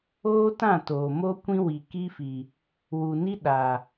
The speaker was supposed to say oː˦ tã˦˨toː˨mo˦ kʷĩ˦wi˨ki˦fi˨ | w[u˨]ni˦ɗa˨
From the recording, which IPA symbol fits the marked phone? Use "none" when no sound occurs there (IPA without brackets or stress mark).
u˨